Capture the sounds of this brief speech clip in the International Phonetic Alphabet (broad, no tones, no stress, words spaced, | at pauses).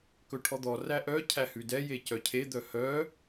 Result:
kɵʈʰɔd̪ɔ ræʔœ cʰæhʉdɛ jecœcʰe d̪œhœ